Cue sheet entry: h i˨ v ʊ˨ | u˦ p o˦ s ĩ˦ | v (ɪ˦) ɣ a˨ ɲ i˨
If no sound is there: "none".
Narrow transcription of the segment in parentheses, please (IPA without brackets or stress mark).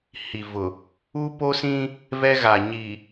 ɛ˦